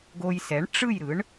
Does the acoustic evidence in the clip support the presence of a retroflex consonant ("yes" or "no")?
yes